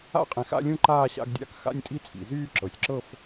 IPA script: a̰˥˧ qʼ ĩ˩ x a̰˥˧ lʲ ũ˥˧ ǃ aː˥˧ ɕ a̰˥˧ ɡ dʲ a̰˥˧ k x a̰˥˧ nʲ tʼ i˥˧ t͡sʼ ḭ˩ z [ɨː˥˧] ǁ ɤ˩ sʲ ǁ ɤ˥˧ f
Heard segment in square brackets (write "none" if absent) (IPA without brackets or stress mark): yː˥˧